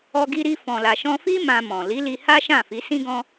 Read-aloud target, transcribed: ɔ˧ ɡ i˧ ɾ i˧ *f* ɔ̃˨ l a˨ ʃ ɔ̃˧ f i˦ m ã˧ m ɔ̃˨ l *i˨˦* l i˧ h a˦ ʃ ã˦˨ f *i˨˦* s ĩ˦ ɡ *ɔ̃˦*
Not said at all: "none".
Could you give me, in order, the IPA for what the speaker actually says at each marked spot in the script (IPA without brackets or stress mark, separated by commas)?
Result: f, i˨˦, i˨˦, ɔ̃˦